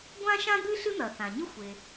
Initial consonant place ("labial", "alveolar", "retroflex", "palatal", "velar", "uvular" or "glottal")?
velar